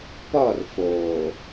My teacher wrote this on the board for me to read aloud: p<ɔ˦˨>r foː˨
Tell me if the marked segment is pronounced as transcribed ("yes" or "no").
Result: yes